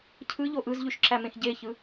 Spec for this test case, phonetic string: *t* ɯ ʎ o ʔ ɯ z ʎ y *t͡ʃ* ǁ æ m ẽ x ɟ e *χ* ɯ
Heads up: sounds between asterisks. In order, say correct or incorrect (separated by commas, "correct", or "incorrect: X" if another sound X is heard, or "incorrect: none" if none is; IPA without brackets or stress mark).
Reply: incorrect: cʰ, incorrect: ʃ, incorrect: ç